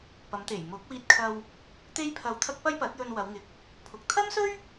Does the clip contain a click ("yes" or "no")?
no